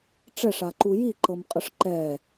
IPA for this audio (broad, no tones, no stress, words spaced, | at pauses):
ʈ͡ʂɛʂaǃu jiǃɤmqʼɤʂ ǃɛ